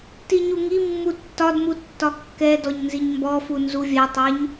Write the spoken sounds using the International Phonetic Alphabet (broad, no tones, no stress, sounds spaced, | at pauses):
t i ɲ u ŋ i mː u tː ɒ d m u tː ɒ kː ɛ d ɔ ɲ n z i ɲ m b ɔ f u n z u vʲ ɛ tˤ ɛ ɲ